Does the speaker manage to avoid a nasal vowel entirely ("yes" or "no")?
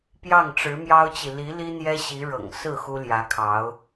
yes